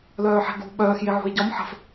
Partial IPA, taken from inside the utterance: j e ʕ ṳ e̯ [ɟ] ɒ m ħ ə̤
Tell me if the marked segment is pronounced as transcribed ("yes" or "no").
yes